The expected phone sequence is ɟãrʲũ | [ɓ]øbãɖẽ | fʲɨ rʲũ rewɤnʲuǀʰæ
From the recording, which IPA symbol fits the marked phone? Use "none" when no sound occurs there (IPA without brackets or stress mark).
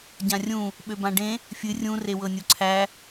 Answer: ɓ